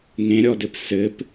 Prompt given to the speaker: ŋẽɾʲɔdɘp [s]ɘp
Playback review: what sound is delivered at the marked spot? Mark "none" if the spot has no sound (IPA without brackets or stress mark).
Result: s